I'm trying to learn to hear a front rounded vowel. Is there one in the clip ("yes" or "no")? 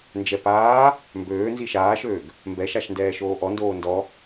yes